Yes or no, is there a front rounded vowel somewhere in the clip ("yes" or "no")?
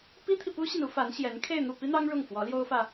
no